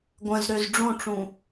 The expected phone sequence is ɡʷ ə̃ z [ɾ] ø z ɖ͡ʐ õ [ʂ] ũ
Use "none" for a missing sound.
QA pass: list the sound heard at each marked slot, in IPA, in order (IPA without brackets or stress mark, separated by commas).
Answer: ɾ, ʈ͡ʂ